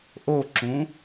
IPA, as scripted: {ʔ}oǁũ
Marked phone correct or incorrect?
correct